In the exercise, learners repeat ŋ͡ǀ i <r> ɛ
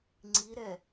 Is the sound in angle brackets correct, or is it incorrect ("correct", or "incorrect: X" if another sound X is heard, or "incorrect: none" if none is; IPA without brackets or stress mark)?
incorrect: ɾ